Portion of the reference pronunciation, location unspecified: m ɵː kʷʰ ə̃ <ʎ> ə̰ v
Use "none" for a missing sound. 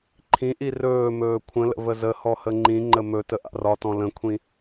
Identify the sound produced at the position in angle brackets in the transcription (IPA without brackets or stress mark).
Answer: l